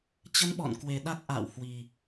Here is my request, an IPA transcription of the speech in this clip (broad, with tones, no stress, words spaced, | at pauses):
t͡ɕə˧nɓɔ̰˧˨nkwe˨˩ ɗa˦˥k̚ʔa̰ː˧˨whwi˨˩